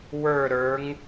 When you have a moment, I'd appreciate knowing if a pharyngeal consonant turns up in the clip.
no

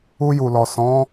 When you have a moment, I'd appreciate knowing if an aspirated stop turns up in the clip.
no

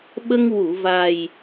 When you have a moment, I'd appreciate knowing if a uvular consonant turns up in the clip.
no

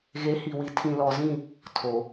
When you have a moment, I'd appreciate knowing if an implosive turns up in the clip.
no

